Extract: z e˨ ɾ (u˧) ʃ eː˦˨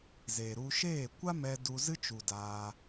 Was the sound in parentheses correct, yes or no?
yes